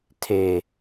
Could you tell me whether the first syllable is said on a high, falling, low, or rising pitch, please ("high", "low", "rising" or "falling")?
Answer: low